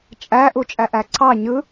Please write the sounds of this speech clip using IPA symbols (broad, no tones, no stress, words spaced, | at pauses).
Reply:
t͡ʃʼæ ʔut͡ʃʼæʔæǀʰɑ ɲɯ